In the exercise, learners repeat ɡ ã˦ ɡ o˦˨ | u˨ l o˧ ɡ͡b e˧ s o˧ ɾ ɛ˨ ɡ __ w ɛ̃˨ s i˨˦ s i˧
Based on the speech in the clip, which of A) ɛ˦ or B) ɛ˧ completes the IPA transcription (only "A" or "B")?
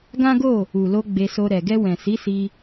B